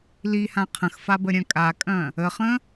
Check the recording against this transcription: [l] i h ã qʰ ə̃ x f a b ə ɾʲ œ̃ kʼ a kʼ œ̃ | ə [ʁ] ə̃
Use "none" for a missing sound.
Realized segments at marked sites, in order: l, χ

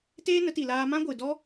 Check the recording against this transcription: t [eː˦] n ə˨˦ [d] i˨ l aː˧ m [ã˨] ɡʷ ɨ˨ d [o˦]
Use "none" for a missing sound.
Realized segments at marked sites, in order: eː˦, t, ã˦, ɔ˦

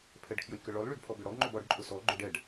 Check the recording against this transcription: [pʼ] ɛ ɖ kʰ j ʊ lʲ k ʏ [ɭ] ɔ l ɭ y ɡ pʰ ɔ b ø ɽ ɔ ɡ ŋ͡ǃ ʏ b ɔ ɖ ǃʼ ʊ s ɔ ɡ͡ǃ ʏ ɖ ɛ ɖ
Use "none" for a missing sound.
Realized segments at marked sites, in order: pʰ, ɭ

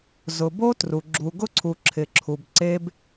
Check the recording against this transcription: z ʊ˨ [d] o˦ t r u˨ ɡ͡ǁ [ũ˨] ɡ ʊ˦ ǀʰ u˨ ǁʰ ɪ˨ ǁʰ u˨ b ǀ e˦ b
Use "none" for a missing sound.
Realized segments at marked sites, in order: b, u˨

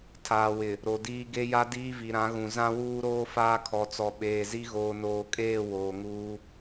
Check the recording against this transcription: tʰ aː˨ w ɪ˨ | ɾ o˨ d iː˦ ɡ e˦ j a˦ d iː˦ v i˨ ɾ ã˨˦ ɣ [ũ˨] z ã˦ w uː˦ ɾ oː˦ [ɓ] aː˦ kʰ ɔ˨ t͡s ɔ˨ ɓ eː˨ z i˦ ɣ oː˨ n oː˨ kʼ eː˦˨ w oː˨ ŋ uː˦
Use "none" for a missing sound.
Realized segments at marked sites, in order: ũ˨, f

